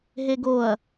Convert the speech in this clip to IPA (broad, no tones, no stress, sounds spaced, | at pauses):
ɦ e ɡ o ɐ̯